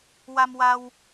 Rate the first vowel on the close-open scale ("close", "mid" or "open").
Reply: open